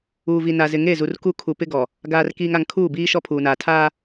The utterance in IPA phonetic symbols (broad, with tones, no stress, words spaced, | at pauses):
uː˨vi˨na˨ zɪ˨ŋe˦˨zu˨r ku˦ kʰu˨ pɪ˦ɡɔ˨ | ɡaː˨rkiː˨ŋa˨ŋ kʰuː˦˨biː˦ʃɔ˦ pʰuː˨naː˨ tʰaː˦